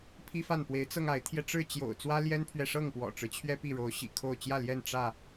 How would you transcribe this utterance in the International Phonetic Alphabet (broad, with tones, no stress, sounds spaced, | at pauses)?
pʰ i˦ f a˥˨ n p w e˨˦ ɪ̯ t͡s ɤ˧ ŋ a˨˦ ɪ̯ t̪ʰ j ɛ˧ ʈ͡ʂ ɻ̩˥˨ t͡ɕ j o̰˨˩ ʊ̯ t͡s w ä˦ l j ɛ˦ n pʰ ɥ ɛ˨ ʂ ɤ˥˨ ŋ p w ɔ̰˨˩ ʈ͡ʂ ɻ̩˦ t͡ɕʰ ɥ ɛ˦ p i˥˨ ɻ o˨˦ ʊ̯ ɕ ḭ˨˩ kʰ o˥˨ ʊ̯ t͡ɕ j ä˥˨ l j ɛ˥˨ n ʈ͡ʂ ä˥˨